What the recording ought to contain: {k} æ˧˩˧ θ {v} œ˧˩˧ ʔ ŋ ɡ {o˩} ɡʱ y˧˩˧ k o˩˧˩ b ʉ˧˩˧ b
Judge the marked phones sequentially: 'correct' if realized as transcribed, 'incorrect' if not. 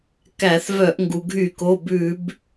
correct, correct, incorrect: u˩

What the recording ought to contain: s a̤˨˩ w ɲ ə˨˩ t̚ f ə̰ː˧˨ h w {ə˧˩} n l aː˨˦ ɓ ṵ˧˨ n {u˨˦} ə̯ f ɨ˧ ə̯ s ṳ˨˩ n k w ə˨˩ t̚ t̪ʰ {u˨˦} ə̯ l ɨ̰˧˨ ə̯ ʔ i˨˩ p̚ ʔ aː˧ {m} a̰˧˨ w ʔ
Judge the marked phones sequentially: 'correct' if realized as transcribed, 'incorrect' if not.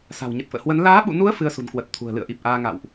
incorrect: ə˨˦, correct, incorrect: ṳ˨˩, incorrect: ŋ

